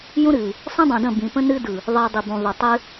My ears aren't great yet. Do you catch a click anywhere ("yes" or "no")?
no